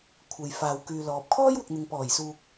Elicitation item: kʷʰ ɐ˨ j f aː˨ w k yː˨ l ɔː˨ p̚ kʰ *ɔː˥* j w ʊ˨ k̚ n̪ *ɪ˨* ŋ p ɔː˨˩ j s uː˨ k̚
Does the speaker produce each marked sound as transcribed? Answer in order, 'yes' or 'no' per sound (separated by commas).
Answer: yes, yes